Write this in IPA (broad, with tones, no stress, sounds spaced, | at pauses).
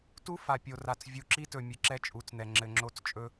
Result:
t u˦ f a˨ pʲ o˨ r a˨ t͡s vʲ u˨ ǁ i˦ t ɵ˨ mʲ ɨ˨ ǁ ɛ˦ t͡ʃʼ u˨˦ t͡s n̪ ɛ˨ ŋ͡ǁ ɘ˨ ŋ͡ǁ o˦˨ t͡s t͡ʃʼ ɵ˦